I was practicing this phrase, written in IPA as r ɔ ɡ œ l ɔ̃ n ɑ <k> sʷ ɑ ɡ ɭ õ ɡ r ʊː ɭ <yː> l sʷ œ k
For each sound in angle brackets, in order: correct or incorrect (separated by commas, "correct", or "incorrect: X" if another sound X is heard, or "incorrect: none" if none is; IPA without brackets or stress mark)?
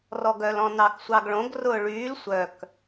correct, correct